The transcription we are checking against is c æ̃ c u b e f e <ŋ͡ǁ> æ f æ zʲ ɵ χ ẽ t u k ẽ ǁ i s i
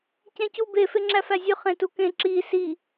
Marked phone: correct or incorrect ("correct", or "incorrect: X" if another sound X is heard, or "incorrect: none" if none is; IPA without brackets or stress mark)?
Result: correct